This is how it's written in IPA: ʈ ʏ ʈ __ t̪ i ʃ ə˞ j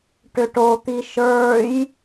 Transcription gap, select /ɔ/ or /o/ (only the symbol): o